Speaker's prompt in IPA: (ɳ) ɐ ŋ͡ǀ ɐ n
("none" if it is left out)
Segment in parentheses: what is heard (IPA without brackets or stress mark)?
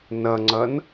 n